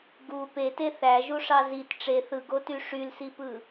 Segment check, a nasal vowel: absent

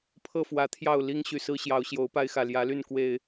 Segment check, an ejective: absent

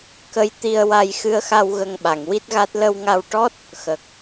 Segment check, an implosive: present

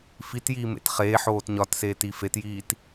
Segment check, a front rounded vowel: absent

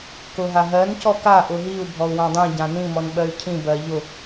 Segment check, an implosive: present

